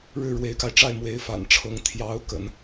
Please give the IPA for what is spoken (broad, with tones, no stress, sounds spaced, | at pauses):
ɻ ɻ̩˥˩ ɻ w e˧˥ ɪ̯ k a˧ ɪ̯ ʈ͡ʂ a˥˩ ɪ̯ m w e˧˥ ɪ̯ f a̰˨˩ n ʈ͡ʂʰ ɤ˧˥ ŋ t̪ʰ j ɑ˧˥ ʊ̯ k ə̰˨˩˦ n